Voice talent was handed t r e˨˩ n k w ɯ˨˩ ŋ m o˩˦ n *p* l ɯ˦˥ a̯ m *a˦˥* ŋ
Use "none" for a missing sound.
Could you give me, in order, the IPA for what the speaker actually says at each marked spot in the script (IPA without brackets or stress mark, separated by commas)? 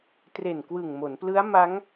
p, a˦˥